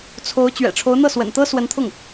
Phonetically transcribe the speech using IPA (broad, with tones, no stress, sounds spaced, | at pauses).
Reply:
t͡sʰ o˧˥ ʊ̯ t͡ɕ ɥ ɛ̰˨˩ ʈ͡ʂʰ o˧˥ ʊ̯ n̪ ɤ˥˩ s w ə̰˨˩ n t̪ ɤ˥ s w ə˧˥ n t̪ʰ ʊ˥˩ ŋ